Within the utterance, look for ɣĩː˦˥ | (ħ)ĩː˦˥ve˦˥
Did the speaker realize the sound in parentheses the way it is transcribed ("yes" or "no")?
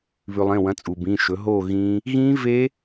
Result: no